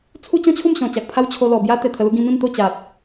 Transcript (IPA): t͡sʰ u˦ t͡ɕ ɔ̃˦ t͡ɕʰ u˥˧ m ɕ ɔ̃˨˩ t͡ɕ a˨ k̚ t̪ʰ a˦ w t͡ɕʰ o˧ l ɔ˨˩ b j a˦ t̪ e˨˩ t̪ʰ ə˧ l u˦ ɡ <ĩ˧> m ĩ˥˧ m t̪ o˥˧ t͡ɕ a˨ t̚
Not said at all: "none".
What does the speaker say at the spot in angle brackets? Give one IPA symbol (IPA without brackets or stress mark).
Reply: ĩ˧